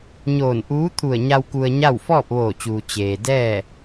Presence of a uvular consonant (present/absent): absent